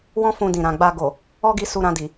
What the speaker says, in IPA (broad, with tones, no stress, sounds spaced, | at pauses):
w ɔ̃˦ f ũ˧ d ĩ˨ ɾ ã˨ ɡ͡b a˧ ɡ o˨ | ɔ˦ ɡ i˧ s u˧ ɾ ã˧ d i˨